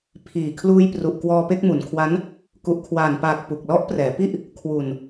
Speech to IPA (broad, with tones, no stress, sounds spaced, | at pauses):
pʰ iː˨˩ kʰ l uː˧ j p r u˨˩ ʔ k w ɔː˧ p e˥˩ k̚ m u˩˦ n kʰ w a˦˥ n | k u˨˩ ʔ kʰ w aː˨˩ n p aː˨˩ k̚ p u˨˩ k̚ l ɔ˦˥ ʔ p r ɛː˩˦ p i˥˩ ʔ | kʰ w u˨˩ n